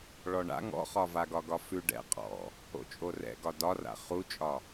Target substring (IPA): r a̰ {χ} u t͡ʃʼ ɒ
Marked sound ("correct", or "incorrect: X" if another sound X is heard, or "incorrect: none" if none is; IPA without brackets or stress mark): correct